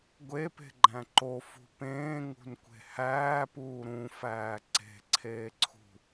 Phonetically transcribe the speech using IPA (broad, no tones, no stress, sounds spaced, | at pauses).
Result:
ɡʷ e p e̤ ɡ͡ǃ æ̃ ǃ o f ṳ p ẽː ŋ ṳ n kʷ e̤ h æː p uː ɾ ũ f æː ǀ e̤ ǀʰ eː ǀʰ ṳ